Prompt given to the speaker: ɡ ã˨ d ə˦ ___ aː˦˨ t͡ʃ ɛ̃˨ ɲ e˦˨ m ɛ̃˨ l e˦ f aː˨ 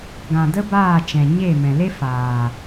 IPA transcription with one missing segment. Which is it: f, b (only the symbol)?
b